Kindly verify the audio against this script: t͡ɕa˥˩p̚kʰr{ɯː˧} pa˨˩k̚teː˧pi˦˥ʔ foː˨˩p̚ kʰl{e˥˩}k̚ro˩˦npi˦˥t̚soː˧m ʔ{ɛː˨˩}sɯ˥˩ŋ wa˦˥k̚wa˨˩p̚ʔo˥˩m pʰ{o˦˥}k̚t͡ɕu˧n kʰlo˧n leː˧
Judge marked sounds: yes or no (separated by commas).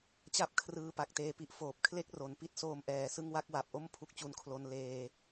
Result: yes, no, yes, no